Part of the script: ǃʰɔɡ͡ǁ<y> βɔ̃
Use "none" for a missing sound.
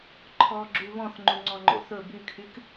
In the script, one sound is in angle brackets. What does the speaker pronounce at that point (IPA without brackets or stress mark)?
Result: y